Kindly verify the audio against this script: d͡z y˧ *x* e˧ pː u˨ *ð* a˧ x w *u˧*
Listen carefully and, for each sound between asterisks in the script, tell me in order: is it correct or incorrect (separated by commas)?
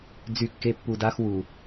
incorrect, incorrect, incorrect